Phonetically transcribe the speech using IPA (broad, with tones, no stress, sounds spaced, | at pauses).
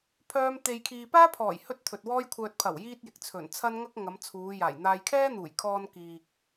pʰ œː˥ m t̪ e˧ j kʰ iː˧ p aː˥ pʰ ɔː˨˩ j h ɵ˥ t̚ t̪ʰ ɵ˨ t̚ w ɔː˥ j kʷʰ œː˧ t̚ pʰ ɐ˨˩ w j iː˧ t̚ j ɪ˨ k̚ t͡sʰ ɵ˨˩ n t͡sʰ ɐ˥ n ŋ ɐ˥ k̚ ŋ ɐ˨˧ m t͡sʰ uː˨˧ j aː˨˩ j n̪ aː˧ j kʰ ɛː˥ n̪ uː˨˩ j kʰ ɔː˧ n k iː˨ k̚